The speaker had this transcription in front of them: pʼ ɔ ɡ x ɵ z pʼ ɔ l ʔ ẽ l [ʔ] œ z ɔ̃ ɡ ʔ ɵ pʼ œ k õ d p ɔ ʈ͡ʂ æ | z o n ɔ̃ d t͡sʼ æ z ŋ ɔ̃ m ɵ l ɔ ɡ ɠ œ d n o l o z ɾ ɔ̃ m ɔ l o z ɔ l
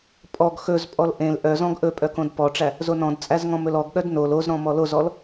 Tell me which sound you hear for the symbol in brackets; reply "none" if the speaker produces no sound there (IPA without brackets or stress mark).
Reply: ʔ